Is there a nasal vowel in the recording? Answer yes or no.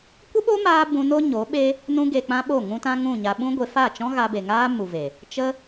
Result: yes